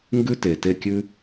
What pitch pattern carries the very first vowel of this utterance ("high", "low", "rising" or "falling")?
high